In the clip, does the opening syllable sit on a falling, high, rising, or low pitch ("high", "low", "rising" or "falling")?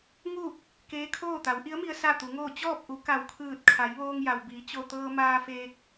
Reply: falling